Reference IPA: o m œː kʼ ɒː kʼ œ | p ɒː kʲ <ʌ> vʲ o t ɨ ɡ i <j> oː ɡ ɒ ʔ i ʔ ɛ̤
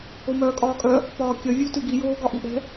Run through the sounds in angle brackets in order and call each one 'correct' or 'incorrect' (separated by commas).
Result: correct, correct